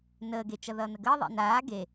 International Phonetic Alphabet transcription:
nəːɡe t͡ʃʌðʌːnəɡəː ðˤḛnaː ɡe

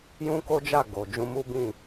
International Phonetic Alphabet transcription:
jũ˦ko˦d͡ʒa˦˨ ɡo˨ d͡ʒũ˧mu˦bĩ˦˨

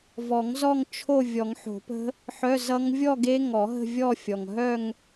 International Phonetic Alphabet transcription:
vɔ˨˩˦ŋzɔ˥˧ŋ t͡ʃʰo˥˧ vʲɔ˨˩˦ŋħo̤˨˩˦pə̤˦˥ | ħœ˧˥˧zʌ˦˥ŋ vʲɔ˥˧ ɡe˦˥ ŋɔ˨˩˦ɦə̤˥˧vʲɔ˥˧fʲɔ˨˩ŋ ɦœ˥˧ŋ

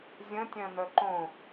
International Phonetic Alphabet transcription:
zʲə̃tʲœ̃nœ ǃõ

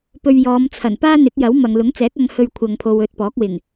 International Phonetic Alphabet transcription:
pɵ˧ɥjɔː˨˧m t͡sʰɐ˨˩npaː˥n̪ɪ˨˥k̚ jɐ˨˥wmɐ˨ŋ lʊ˨˥ŋt͡sɛː˨˥k̚ ɐ˧ŋhɵ˧ɥkʷʰɐ˨ŋpʰo˨w ɵ˧t̚pɔː˨˥k̚wɪ˨˩ŋ

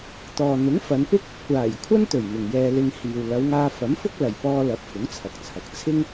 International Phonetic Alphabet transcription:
t̪ɔː˨n̪ʊ˨˥ŋfɐ˨˧npɪ˥k̚ | kʷaː˨˩jkʷʰɐ˥nt̪ɵ˨˩ɥ mɪ˨ŋjɛː˧lɪ˧ŋ hiː˨wlɐ˨˧wŋaː˧ fɐ˨˥mfʊ˥k̚ lɐ˨jpɔː˧ lɐ˨˥p̚ fʊ˨˥ŋt͡sʰɐ˨k̚t͡sʰɐ˨k̚ t͡sʰɪ˥ŋ

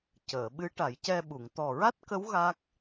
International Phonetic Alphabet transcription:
cəː˨˩˨ɓɨ˧˥ ʈa˨˩˦jcɛ˧ɓu˨˩˨ŋ t̪ɔ˨˩ɹa˦˥t̚kə˧˥w ɣa˦˥k̚

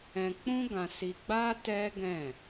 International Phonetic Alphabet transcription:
ɛ̃˧ k͡pũ˦ɡã˧si˧ɡ͡ba˦ tɛ˦ɡɛ̃˦˨

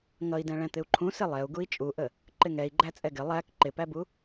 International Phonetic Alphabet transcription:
ŋʌi̯dɛ̃ ɭɛ̃t̪ɪu̯ǃʰũ sɪlˠɛu̯ ɡui̯t͡ʃʼuʔə | ǃɪŋɛi̯ɡ͡ǃæ t͡sʼɛɡɪ lˠæk ǃɪpæbu

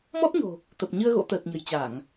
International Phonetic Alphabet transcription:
mɔ˦˥t̚ɲo̤˨˩ | t̪ə˨˩p̚ ɲɨ˧ə̯ ɣo̰˧˥t̪əː˨˩t̚ɲə̤˨˩j t͡ɕa˧˩˨ŋ

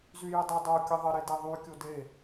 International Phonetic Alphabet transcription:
zyjɘdˤə dˤo kʲəðˤə ɾedeðˤy kʲode

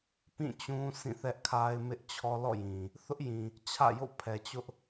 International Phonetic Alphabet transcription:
pĩ˦˨t͡ɕũ˦ sĩ˦˨θɛ˦ʔkʰa˦ɪ̯ mɪ˦ʔt͡ɕʰɔ˦ lɔ̰˦˨jĩ˨ | θʊ˦ʔjĩ˨ | t͡ɕʰä̰˦˨jo̰˦˨ pʰɛ˨ t͡ɕʊ˦ʔ

